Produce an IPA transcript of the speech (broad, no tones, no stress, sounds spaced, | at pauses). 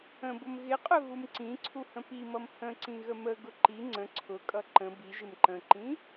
ə̃ b ʊ m ɣ ɪ qʼ ʊ ɣ u m ǀ ĩ ǀʰ u h ə̃ p i m ʌ m h ə̃ ǀ ĩ ɣ ə m ə ɡ ʊ ǃ i ŋ͡ǀ ə̃ ǀʰ ʊ kʼ ʌ ǃ ə̃ b i ʒ ɪ m ǃ ə̃ ǃ ĩ